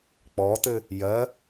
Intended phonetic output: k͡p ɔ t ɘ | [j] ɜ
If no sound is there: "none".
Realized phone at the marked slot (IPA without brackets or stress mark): j